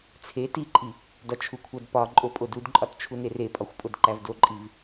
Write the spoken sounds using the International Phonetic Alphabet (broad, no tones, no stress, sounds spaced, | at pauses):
t͡sʰ e t i ǃʼ i | d ɒ t͡ʃʰ u kʷʰ æ d p ɒ ǃʼ o pʼ o d u d ǃʼ ɒ t t͡ʃʰ u n e r e pʼ ɒ xʷ pʼ o d ǃ æ v d o ǃʼ i v